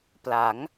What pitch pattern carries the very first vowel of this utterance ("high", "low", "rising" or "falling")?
rising